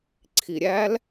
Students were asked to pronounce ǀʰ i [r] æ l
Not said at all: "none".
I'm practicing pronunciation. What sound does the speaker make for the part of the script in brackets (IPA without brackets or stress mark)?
ɾʲ